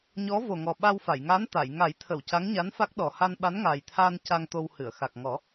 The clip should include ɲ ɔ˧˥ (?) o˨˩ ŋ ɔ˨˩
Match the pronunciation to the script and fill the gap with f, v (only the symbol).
v